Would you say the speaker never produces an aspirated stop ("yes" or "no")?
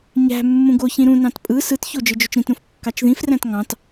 yes